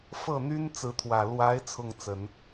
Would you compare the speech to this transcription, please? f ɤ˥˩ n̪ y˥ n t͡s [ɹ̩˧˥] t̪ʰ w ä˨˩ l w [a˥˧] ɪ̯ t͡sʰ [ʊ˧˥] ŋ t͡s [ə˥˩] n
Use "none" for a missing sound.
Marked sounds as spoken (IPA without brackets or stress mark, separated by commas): ɹ̩˧˥, a˧˥, ʊ˥˩, ə˨˩˦